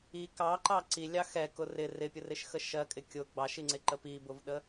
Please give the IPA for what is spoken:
i k ɑ ǃ ɑ ǀ i lʲ ɑ x ɛ k ʊ r ɪ r ɪ pʲ ʊ r ɪ ʃ x ə ʃ ɜ kʼ ɪ kʲ ʊ ɡ͡b ɑ ʃ i ŋ͡ǀ ɪ ǃ ə p i b ʊ v ɗ ə

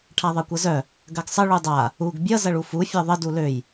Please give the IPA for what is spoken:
ʈʰ a ðˤ ʌ kʷ ʌ z œ | ɡ ɐ ɡ sˤ ə ɭ u dˤ a | u ɡ bʲ ʌ z ɐ ɭ u f u fʲ ɔ ðˤ ə d u l ø j

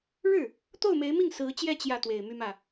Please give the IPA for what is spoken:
ɻ ɻ̩˥˩ | t̪ o˥˩ ʊ̯ m e˧˥ ɪ̯ m i˥˩ ŋ s ɹ̩˧˥ t͡ɕ j ɛ˥˧ t͡ɕ j ä˥˩ t̪ w e˨˩ ɪ̯ m y˥ m ä˥˩

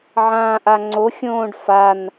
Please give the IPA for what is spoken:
ʕ ãː ʔ a ŋ͡ǀ o xʲ õː ɖ f a n

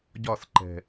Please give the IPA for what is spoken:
ɟ ɒ s ǃ ɛ̤

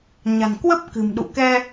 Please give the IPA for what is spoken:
ɲ a̤˨˩ n k w ə˦˥ p̚ k ɨ̤˨˩ m ɗ ṵ˧˨ k ɛ˧

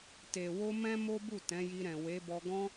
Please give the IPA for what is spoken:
t e˨ w o˧ m ɛ̃˦ m o˦ b u˦˨ t ɛ̃˨˦ j i˧ ɾ ɛ̃˨ w e˨˦ b ɔ˧ ɡ ɔ̃˧

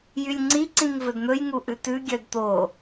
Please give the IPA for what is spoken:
j y lʲ ŋ͡ǀ i ǀ ĩ ŋ v ɵ d n̪ ɵ j ŋ u ʔ ʉ t ʉ ɡʲ œ d t̪ o

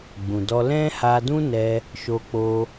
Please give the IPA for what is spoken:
ɡ͡b ũ˨ d ɔ˧ l ɛ̃˦ h a˧ d ũ˦ n ɛ˧ | ʃ o˧ k͡p o˧

